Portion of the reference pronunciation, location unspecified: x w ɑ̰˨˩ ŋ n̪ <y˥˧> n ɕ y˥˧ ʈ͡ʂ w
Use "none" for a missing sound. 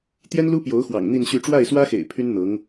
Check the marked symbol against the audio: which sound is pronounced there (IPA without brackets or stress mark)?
i˥˧